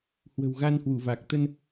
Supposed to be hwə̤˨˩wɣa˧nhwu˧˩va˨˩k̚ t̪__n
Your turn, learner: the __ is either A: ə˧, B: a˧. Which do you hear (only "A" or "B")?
A